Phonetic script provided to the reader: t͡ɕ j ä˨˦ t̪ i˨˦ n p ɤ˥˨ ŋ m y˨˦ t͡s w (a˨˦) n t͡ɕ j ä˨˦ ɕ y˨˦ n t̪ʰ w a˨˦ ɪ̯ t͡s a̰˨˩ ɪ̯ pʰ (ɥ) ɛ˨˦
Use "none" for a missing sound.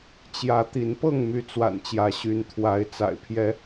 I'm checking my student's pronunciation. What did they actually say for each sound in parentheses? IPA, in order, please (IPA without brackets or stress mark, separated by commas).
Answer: a̰˨˩, j